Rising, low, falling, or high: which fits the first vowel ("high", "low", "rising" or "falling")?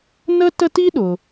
high